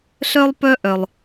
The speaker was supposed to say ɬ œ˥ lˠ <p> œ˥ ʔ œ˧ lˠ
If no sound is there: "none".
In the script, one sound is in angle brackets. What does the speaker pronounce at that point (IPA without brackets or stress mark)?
p